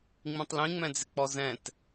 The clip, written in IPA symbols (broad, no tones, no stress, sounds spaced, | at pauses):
ŋ͡m ĩ tˤ l ĩ ŋ͡m ɛ̃ d͡z ɪ k͡p ɔ z ɛ̃ t